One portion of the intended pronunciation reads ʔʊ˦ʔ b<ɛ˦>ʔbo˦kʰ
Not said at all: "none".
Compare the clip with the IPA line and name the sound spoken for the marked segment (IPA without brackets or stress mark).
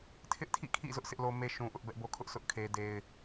ɛ˦